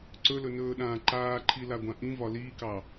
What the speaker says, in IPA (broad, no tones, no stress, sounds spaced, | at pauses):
ǀ ɵ l ɵ n ɵː ɗ ãː ǃ aː ǃʰ i l a ɡʷ ã ʔ ĩ v ɒ l iː k ɑ